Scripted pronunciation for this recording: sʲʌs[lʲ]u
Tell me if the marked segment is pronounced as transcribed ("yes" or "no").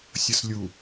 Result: yes